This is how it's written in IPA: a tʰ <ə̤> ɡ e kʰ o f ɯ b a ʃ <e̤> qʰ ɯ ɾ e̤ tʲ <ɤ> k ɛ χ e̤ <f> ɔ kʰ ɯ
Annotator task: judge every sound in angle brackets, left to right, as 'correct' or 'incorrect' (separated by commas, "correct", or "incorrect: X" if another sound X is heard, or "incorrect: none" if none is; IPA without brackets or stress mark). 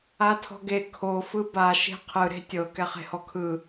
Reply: incorrect: ɔ̤, correct, correct, incorrect: h